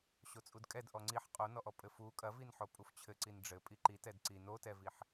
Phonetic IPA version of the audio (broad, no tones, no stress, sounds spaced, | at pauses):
ɕ o t͡sʼ u d kʼ ɛ d ʔ ɔ ŋ͡ǀ i ħ qʼ o n ɔ ʔ ɔ pʼ ɘ f u kʼ ɐ v i n ħ o pʼ u f t͡ɕʰ ɘ ǀ i n ɖ͡ʐ ɘ pʼ i ǃ i t ɛ d ǀ i n o t ɛ v i ħ